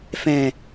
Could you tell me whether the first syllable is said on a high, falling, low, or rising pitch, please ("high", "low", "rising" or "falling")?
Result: low